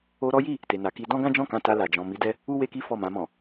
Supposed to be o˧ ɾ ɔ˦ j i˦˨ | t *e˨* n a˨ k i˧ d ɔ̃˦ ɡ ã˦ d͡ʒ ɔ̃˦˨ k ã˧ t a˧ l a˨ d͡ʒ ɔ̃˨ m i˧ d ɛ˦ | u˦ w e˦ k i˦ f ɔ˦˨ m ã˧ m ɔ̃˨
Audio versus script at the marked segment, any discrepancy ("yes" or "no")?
no